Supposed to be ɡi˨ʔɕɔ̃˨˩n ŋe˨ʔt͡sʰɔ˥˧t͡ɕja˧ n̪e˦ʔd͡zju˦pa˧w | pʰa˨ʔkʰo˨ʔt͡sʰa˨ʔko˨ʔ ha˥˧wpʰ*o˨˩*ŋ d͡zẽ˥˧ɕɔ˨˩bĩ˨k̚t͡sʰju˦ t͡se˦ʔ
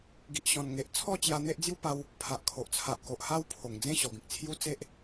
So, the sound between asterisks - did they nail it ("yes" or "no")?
yes